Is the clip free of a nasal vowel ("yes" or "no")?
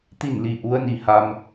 yes